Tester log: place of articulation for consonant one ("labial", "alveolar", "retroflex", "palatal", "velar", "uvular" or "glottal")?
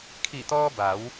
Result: velar